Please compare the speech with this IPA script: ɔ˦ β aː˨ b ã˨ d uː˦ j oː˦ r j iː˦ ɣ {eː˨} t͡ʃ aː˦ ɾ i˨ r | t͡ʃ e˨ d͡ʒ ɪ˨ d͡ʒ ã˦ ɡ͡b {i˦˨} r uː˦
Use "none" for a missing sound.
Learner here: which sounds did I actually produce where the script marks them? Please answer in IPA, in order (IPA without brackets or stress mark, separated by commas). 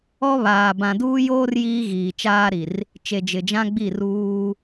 iː˨, i˦˨